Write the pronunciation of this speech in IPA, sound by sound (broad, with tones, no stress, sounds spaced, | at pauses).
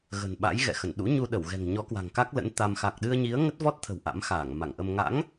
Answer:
ɣ ə̤˨˩ n ɓ a̰˧˥ j ɣ ɛ̰˧˨ x ə˧˩ n ɗ ṵ˧˥ ɲ u˧ ɗ ə˧˩ w ɣ ɛ̤˨˩ ŋ ɲ ɔ˨˦ k w a̤˨˩ ŋ k a˦˥ k̚ l ə̰˧˥ n t̪ a˧ m x a˨˩ k̚ ɗ ɨ˧ ə̯ ɲ i˨˦ ə̯ ŋ ə˦˥ t̚ v ɔ˦˥ t̚ t̪ʰ ə̤˨˩ w ʔ a̰˧˥ m x aː˧˩ ŋ m a˧˩ ŋ ʔ ə˧ m ŋ a̰˧˥ ŋ